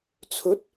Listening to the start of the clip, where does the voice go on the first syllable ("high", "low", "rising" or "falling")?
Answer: rising